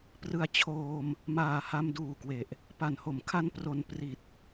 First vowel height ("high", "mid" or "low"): high